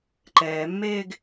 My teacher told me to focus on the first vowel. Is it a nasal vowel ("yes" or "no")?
no